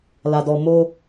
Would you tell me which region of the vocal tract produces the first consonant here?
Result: tongue tip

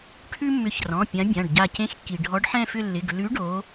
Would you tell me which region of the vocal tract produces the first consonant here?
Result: retroflex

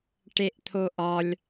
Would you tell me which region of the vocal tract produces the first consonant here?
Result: retroflex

